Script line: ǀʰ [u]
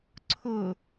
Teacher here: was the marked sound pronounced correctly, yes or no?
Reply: no